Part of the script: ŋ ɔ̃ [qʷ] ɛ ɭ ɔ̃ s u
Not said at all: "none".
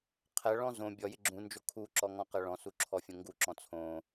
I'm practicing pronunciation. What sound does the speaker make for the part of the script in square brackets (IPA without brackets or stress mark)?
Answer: q